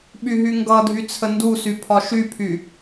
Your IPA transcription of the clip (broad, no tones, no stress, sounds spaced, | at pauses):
ɓ y ɦ y ŋ ɡ ʌ dʱ y t͡sʰ ə n d u s y pʰ ɒ ʃ y pʰ y